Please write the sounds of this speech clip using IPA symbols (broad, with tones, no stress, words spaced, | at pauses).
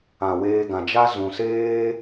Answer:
ã˨weː˧ ɡã˨d͡ʒa˦zũ˨seː˦